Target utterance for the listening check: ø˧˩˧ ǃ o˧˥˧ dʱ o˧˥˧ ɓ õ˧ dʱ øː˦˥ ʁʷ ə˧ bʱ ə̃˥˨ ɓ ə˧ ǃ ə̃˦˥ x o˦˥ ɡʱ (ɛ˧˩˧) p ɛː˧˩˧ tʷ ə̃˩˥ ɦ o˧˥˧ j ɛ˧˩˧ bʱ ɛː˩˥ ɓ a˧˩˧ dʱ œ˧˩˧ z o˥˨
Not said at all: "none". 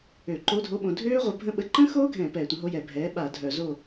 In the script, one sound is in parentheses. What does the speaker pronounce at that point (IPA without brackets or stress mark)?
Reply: ɛ̃˧˩˧